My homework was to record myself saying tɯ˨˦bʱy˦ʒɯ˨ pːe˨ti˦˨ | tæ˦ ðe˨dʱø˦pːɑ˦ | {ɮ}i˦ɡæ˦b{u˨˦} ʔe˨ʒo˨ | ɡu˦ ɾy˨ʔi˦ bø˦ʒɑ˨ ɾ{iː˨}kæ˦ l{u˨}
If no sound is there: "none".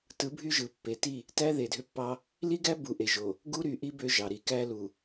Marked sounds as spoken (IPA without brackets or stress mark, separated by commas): l, u˨, i˨, u˨